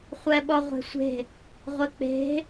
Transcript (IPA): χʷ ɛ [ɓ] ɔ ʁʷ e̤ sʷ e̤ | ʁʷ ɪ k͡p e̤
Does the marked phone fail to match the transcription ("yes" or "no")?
no